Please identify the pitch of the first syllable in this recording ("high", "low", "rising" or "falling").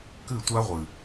falling